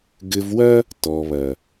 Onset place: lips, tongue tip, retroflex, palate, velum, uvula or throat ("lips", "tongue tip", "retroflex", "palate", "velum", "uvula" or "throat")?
velum